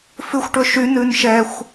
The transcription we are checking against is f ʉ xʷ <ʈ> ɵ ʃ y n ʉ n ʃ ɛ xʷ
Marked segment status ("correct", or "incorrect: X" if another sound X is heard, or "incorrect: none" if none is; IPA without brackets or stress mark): correct